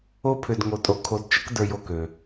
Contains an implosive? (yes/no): no